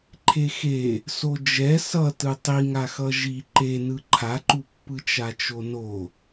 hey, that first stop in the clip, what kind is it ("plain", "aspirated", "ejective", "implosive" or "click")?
click